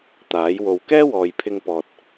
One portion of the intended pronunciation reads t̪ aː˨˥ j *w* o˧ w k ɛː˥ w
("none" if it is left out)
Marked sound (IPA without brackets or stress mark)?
w